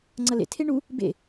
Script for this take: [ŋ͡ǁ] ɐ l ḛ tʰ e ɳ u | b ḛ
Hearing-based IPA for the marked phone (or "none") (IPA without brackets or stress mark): ŋ͡ǀ